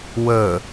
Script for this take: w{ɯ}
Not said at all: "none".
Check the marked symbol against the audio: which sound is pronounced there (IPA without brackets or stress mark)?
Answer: ə